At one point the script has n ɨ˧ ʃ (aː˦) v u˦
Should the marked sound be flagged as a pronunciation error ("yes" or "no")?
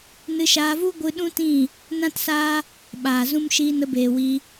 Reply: yes